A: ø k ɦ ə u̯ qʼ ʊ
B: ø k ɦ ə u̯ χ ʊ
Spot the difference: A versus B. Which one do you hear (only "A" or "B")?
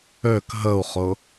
B